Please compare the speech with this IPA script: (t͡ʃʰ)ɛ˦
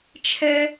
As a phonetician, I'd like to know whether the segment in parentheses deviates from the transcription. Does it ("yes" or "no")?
no